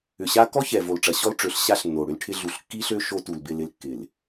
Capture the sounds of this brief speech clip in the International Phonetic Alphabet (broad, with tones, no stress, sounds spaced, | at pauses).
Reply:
ʏ˨ ɕ a˦ k ɔ˦ ç ɛ˨ v o˨ l ʈ͡ʂ ɐ˨ ɕ ɔ˦ l ʈ͡ʂ ø˨˦ ɬ ɕ a˦ ɬ nː o˨ ɽ ʏ˦ l ʈʰ ɪ˦ ɮ u˨ ɬ kː i˦ ɬ ø˦ ʃ o˦ t u˨ l b ɪ˦˨ l ɪ˦ l kː ɪ˨ l